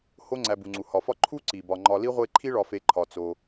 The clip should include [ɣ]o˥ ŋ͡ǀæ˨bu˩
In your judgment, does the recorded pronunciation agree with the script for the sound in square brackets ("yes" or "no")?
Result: no